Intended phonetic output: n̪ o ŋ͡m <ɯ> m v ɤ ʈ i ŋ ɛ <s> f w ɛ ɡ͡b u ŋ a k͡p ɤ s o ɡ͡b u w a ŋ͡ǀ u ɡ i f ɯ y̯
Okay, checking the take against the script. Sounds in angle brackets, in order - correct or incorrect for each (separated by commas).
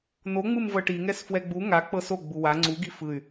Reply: correct, correct